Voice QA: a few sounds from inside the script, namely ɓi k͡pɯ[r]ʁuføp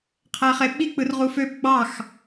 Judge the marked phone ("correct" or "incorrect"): correct